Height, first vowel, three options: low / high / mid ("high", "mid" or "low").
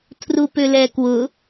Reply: high